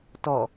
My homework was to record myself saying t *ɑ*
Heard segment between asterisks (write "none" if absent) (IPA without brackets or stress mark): ɔ